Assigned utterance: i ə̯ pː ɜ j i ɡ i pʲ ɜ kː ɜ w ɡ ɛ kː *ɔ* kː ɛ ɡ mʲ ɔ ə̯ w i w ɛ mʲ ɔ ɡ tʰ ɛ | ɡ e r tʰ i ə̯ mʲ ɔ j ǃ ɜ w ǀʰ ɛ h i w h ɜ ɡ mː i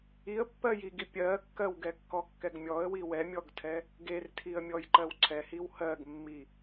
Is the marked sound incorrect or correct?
correct